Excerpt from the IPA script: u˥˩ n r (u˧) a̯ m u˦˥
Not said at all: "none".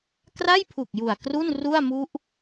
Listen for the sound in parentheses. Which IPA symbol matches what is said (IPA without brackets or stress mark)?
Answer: u˥˩